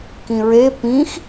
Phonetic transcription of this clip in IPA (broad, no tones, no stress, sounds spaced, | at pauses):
k ĩ ɹ e p ĩ x